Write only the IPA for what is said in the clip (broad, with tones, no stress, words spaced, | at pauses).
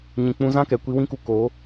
ɲĩ˨k͡pũ˧ zã˦kɛ˨ kʷi˧wĩ˦ku˧ ko˨˦